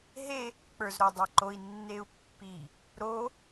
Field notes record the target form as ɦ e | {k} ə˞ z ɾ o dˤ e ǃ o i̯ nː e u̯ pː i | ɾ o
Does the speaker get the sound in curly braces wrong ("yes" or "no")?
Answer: yes